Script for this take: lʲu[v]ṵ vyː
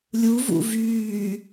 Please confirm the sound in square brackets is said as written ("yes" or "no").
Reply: yes